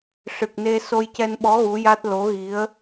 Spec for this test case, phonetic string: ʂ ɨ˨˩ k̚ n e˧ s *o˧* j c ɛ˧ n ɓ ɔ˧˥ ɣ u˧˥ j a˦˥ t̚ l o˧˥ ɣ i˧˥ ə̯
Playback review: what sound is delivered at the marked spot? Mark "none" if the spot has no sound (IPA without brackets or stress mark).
o˧